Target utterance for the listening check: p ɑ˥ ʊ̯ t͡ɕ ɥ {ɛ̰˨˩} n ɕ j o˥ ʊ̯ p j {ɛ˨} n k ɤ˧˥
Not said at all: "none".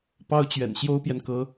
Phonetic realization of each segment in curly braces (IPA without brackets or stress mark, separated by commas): ɛ̰˨˩, ɛ˨